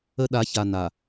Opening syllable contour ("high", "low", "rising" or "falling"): high